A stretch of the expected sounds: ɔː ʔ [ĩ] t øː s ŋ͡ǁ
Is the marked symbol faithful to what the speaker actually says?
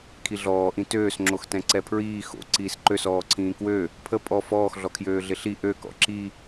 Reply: yes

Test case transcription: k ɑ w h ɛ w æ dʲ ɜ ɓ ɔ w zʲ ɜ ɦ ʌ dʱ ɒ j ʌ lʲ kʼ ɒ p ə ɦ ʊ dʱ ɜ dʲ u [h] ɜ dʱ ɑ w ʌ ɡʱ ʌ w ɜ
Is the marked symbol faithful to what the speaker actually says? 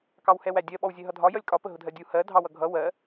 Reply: yes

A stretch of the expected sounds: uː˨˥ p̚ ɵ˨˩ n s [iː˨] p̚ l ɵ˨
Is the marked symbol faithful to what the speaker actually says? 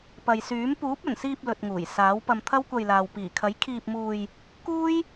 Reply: no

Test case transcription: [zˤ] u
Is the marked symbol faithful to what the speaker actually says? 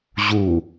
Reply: no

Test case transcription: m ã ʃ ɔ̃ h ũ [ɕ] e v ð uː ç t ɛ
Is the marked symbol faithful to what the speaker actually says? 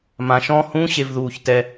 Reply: yes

